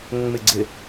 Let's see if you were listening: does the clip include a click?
yes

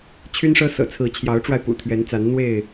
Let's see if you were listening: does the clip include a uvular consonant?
no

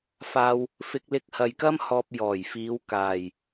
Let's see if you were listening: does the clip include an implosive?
no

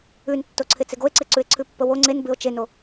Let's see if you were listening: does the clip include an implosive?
no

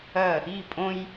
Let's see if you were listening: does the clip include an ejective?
yes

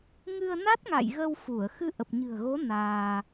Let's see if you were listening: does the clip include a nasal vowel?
no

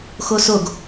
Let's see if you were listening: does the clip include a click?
no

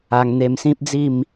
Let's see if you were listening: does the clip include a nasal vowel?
yes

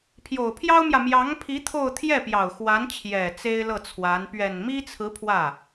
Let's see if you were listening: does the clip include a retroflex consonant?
no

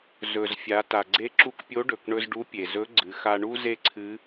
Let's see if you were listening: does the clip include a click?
yes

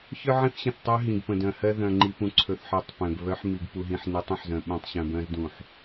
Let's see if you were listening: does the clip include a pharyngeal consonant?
yes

